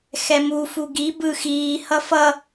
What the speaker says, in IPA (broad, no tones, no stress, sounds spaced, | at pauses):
x ɛ m u f u ɡ i b ɯ x iː h ʌ f ʌ